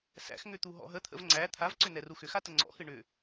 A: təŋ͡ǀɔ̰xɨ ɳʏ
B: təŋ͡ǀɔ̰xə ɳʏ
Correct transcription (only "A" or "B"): A